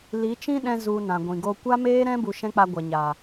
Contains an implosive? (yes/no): yes